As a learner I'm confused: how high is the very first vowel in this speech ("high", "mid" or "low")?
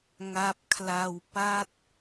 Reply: low